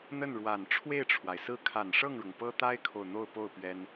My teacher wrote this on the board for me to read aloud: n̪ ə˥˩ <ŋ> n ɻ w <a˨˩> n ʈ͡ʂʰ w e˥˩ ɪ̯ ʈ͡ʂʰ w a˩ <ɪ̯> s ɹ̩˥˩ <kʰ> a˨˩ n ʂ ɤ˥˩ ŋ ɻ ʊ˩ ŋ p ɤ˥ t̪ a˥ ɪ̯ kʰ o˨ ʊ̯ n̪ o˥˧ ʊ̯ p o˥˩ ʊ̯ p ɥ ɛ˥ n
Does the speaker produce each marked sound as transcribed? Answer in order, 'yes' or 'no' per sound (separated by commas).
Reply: no, yes, yes, yes